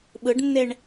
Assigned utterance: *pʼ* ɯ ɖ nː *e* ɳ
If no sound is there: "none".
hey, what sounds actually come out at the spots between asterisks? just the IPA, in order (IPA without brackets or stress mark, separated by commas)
ɓ, e